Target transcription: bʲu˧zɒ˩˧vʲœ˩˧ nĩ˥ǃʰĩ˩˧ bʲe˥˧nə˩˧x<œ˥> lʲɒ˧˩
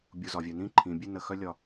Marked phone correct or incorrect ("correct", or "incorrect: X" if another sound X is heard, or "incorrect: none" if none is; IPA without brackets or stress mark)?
correct